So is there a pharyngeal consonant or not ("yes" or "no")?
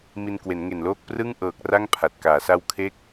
no